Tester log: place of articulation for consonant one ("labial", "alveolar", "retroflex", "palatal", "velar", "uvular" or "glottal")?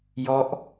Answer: palatal